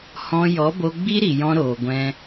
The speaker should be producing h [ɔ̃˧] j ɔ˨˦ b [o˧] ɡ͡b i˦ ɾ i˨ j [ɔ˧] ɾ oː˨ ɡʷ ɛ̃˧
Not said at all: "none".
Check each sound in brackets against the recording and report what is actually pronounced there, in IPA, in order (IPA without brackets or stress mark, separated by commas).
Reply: ɔ̃˧, o˧, ɔ̃˧